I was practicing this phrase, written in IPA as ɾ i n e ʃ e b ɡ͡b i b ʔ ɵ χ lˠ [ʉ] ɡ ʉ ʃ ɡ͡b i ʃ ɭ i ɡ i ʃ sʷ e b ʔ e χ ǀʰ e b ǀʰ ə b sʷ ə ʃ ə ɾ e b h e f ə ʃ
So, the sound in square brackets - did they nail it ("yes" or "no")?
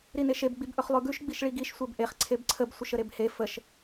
yes